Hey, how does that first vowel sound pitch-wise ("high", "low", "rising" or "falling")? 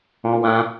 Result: high